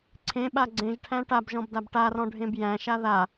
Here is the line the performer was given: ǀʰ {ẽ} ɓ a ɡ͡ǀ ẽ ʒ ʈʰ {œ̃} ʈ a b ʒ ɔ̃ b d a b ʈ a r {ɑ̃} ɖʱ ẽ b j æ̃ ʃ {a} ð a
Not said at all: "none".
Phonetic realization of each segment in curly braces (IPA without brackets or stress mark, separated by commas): ẽ, æ̃, ɔ̃, a